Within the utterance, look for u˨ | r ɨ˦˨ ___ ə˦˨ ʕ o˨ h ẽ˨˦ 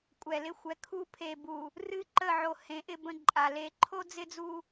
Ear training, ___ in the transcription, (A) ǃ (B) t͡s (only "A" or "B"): A